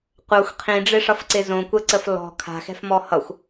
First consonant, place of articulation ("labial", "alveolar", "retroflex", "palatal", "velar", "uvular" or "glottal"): uvular